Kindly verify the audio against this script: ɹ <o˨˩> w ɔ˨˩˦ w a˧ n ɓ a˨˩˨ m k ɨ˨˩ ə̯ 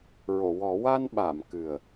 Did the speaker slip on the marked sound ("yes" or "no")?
yes